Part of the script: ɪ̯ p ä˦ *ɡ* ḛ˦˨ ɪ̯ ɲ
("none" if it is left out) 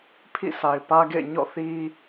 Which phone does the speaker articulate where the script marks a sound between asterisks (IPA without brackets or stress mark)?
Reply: ɡ